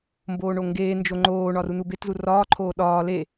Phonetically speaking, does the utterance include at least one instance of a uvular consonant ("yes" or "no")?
no